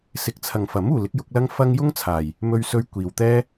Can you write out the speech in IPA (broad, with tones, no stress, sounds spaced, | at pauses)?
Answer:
s ɪ˨˥ k̚ t͡sʰ ɐ˨ ŋ f ɐ˨˥ m uː˨ l ɪ˨˥ k̚ j ʊ˨˥ k̚ l ɐ˥ ŋ f ɐ˥ ŋ j ʊ˥ ŋ t͡sʰ aː˨ j | m ɵ˧ ɥ s ɵ˧ ɥ kʷ iː˨ w t̪ ɛː˥